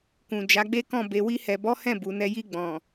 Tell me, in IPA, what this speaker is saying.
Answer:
kũ˨d͡ʒa˨˦ɡ͡be˦kɔ̃˦˨ be˨wi˧hɛ˨bɔ˨˦ hɛ̃˦˨bu˨nɛ˧ ji˧ɡ͡bɔ̃˨

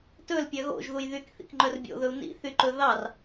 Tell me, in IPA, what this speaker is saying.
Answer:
tɵlpʲœ ɣo̰ʒðuj ðykθḭkŋ͡ǃœr bʲo̰ðɵu̯ nḭθyǃɵ ðɑr

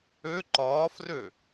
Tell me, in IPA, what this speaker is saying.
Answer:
ø ǃɒːfrø

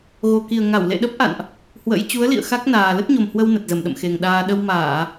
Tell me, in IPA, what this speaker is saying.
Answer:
ɣo˨˩ki˨˩ə̯ ŋa˧˩wlḛ˧˨ɗə˦˥p̚ ʔa̰˧˨nʔ | hwə̰˧˥j t͡ɕu˨˦ə̯lḭ˧˨ə̯ xa˦˥k̚naː˨˩ lə˦˥t̚ɲo˨˩mhwə˧w nə˨˩t̚zə˧˩mɗə̰˧˨mxe˨˩ŋ ɗaː˧ ɗə˧w maː˧˩˨

